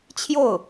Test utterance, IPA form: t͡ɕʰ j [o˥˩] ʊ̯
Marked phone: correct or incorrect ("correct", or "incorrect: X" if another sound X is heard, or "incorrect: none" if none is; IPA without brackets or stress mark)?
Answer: correct